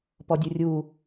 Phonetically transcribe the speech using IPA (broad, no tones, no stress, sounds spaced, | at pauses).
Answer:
p ɔ dʲ u rʲ u